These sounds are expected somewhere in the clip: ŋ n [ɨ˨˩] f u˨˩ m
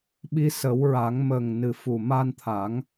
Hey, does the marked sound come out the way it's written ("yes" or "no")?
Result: yes